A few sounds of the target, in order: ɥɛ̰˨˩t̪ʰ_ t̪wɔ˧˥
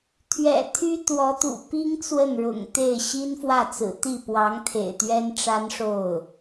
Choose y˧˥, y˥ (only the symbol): y˥